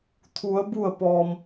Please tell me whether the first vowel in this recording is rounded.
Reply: yes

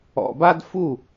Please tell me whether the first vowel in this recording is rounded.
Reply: yes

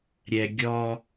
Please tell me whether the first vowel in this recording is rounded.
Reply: no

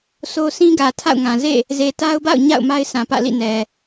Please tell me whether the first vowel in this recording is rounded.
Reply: yes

